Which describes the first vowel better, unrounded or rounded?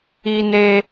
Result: unrounded